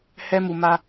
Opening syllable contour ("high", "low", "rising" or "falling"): high